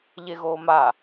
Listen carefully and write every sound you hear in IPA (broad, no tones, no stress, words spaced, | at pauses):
ʎeɣoːma